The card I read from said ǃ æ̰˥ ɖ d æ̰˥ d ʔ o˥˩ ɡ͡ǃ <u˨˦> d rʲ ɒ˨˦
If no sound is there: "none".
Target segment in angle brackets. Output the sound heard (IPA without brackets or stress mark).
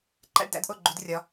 u˨˦